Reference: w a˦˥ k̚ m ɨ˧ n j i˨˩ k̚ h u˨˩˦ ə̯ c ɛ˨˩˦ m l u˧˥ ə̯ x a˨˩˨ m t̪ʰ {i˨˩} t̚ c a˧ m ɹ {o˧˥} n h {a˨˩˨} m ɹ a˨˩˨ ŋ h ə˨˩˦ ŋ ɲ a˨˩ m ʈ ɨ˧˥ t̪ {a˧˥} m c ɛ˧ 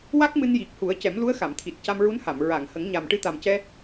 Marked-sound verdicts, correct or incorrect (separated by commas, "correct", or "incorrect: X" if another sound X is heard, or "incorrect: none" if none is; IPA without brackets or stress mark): correct, incorrect: u˧˥, correct, incorrect: a˨˩